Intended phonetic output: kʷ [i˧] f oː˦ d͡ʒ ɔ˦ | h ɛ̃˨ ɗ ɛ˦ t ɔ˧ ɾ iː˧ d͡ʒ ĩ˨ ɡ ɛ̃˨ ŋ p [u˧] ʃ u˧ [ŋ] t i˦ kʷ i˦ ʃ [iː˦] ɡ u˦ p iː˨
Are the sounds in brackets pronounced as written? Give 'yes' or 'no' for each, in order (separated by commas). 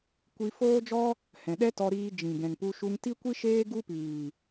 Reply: yes, yes, yes, no